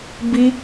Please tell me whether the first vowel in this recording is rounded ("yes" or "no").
no